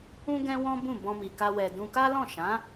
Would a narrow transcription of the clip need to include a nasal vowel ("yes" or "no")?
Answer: yes